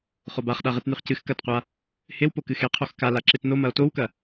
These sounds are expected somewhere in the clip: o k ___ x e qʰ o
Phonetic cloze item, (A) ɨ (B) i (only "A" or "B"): A